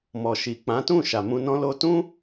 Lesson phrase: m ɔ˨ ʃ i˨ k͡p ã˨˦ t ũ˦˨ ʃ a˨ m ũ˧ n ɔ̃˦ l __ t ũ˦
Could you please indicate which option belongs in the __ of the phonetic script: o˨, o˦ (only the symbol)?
o˦